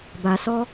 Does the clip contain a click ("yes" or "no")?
no